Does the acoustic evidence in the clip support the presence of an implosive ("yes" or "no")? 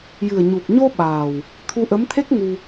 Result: yes